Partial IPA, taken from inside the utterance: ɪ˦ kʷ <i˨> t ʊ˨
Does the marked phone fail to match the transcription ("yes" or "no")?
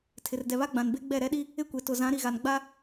yes